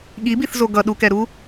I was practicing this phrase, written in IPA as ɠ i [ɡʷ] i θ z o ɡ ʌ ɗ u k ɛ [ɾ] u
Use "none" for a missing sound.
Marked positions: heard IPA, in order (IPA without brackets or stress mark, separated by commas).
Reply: b, ɾ